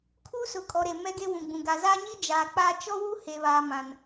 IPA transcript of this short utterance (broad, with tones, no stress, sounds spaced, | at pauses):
kʰ uː˦ s ʊ˨˦ kʼ ɔ˨ ɾ e˨ m ɛ˦ ɡ e˦ w ũ˨ ɡ͡b ũ˨ ɡ a˨ z aː˦ ɲ iː˦ d͡ʒ aː˨ k͡p aː˦ t͡ʃ ɔ˦ w u˦ h e˨ β aː˨ m ã˨ n